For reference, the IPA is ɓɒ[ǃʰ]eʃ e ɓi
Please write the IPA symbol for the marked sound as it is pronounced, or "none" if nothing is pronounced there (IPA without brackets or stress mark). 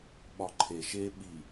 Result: ǃʰ